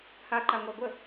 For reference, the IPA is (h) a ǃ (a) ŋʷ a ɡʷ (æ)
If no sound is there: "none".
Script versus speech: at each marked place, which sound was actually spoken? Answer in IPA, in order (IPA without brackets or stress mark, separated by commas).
h, a, ə